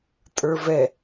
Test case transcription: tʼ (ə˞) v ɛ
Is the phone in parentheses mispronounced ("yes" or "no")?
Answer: no